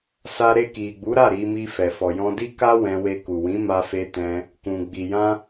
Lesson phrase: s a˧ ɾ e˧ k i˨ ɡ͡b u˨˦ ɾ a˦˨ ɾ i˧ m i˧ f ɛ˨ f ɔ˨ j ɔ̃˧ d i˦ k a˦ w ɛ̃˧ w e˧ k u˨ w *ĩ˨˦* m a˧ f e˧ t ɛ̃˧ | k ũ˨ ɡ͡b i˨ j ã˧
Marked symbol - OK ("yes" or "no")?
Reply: yes